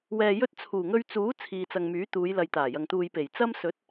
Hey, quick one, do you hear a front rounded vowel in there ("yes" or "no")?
yes